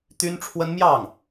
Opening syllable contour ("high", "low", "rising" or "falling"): high